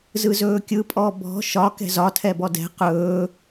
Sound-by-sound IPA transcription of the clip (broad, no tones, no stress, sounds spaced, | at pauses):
z ɯ z ɵː kʲ ɯ pʼ ɔ b ɔ̤ ʃ ɒ k ɛ̤ z ɒ tʰ ɛ b ɔ d ɛ̤ q ɵː